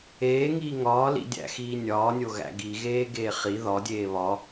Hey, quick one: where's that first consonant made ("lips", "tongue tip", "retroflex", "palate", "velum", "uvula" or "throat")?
velum